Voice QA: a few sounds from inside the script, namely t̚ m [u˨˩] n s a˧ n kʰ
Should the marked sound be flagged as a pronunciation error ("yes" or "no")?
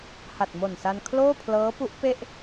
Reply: yes